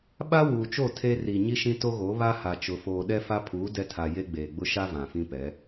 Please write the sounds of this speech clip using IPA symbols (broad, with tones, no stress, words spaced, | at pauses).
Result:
ɓa˦ wuː˨t͡ʃo˦˨ tʰe˦ ri˨ ɲi˦ʃĩ˦to˦ɣo˨˦ βa˦ha˨t͡ʃʊ˨ foː˨ ɗɛ˦fa˦pʰuː˨˦ dɛ˦tʰa˨ je˦ɡ͡beː˨ ɡ͡bʊ˦ʃa˦ vã˨fĩ˦pɛ˨˦